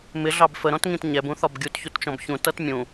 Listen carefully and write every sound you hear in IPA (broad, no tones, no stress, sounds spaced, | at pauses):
m ɪ ɮ ɑ b f ə ɾ ɔ̃ t ŋ ĩ t ɲ ɛ b ũ θ ɒ b ɡʲ u t ç u t t͡ʃ ɔ̃ b ç ũ t ʌ t mʲ ũ